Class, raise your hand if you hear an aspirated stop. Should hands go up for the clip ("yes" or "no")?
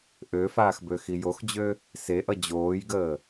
no